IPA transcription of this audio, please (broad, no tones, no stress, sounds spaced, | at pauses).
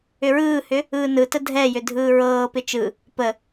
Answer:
ʏ ɹ ɯː h ʏ | ɯː n ɯ t ə dʱ ɛ j ʏ dʱ ɯː ɹ ɤː p ɪ t͡ʃ ɯ | p ə